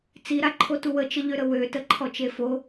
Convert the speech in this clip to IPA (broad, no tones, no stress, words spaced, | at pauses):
t͡siɾaǃʰotu wət͡ʃəʎøɾə wøtəǃʰɔt͡ʃe fo